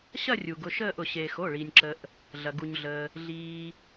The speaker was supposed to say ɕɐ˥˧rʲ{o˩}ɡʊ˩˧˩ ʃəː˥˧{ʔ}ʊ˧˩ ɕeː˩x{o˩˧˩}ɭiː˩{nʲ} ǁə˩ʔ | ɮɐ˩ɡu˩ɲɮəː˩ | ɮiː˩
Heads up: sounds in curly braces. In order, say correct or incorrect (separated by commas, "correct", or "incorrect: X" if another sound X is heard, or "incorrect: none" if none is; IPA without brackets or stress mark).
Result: incorrect: u˩, correct, correct, correct